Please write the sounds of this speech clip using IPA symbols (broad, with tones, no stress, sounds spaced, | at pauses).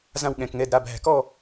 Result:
z ã˥˧ w ɠ ɛ̃˧ k ŋ ɛ˧˥˧ d ɾ a˧˥˧ b ɦ æ̤˧ k ɔ˥˧